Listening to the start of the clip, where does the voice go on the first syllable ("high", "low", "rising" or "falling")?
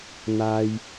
high